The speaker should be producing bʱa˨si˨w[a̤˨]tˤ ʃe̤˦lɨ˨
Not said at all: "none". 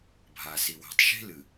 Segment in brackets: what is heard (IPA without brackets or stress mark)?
a̤˨